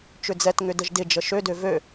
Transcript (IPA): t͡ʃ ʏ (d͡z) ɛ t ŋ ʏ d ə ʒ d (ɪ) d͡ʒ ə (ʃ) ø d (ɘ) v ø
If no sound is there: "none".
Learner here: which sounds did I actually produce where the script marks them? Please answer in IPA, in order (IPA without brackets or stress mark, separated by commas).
d͡z, ɪ, ʃ, ø